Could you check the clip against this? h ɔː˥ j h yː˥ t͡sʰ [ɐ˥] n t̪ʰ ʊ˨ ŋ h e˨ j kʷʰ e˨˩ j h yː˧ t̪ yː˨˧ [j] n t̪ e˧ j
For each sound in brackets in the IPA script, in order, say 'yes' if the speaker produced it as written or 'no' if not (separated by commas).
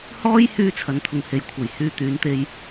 no, no